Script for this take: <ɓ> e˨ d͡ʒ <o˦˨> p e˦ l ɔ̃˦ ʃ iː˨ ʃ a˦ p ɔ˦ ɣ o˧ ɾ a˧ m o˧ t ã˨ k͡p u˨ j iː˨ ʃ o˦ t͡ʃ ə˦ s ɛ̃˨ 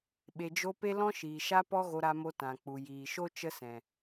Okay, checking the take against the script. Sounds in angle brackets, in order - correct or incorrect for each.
correct, incorrect: o˧

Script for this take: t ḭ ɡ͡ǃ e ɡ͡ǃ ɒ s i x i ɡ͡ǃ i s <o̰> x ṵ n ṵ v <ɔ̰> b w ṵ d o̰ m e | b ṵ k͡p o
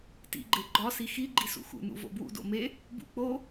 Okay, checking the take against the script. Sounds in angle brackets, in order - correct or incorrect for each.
incorrect: ṵ, incorrect: o̰

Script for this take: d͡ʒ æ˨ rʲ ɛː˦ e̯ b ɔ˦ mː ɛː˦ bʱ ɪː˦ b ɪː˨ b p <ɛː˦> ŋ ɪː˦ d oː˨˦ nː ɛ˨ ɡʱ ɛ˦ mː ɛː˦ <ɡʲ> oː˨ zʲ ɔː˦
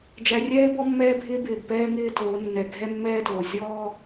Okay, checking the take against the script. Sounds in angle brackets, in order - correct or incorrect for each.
correct, incorrect: d

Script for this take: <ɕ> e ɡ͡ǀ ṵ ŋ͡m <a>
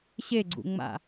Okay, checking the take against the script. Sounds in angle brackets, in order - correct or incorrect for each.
correct, incorrect: a̰

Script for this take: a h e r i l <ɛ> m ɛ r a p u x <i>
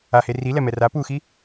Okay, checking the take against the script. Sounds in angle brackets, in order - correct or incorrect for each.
correct, correct

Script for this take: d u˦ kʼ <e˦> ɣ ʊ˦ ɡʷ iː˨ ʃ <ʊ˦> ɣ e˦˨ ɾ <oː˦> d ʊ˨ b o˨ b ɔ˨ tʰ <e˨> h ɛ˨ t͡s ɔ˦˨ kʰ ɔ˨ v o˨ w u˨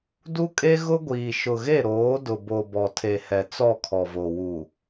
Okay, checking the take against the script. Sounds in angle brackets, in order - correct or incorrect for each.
correct, incorrect: ʊ˨, incorrect: oː˨˦, correct

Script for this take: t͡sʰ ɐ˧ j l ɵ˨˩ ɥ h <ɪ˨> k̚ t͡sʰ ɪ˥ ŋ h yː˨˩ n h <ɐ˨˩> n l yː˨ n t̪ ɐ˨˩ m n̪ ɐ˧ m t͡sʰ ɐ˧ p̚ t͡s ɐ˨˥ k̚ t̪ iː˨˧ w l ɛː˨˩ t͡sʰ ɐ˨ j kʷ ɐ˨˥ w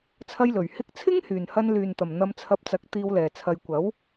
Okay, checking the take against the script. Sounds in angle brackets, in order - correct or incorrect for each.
incorrect: ɪ˧, incorrect: ɐ˧

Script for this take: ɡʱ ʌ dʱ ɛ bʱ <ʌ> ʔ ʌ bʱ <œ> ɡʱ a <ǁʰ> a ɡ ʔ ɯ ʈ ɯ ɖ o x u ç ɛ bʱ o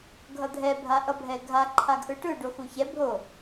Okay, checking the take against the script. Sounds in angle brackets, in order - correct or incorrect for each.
incorrect: a, incorrect: ɛ, incorrect: ǃʰ

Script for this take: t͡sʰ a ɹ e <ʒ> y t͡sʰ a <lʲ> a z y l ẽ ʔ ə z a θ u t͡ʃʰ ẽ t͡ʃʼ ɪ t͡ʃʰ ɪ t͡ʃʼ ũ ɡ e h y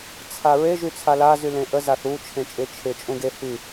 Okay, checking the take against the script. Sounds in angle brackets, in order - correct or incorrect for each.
correct, incorrect: l

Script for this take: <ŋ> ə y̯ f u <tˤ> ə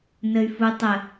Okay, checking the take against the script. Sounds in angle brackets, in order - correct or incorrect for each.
incorrect: n, correct

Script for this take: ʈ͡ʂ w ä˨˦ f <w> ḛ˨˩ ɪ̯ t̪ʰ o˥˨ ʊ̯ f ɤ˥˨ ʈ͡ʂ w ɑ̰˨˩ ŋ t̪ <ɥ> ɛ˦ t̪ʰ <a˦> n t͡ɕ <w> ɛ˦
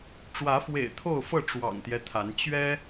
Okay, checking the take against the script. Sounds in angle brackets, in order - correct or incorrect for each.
correct, incorrect: j, incorrect: a˨˦, incorrect: ɥ

